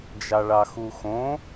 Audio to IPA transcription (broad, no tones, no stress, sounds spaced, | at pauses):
d͡ʒ ɑ ɭ ɑ x u x õ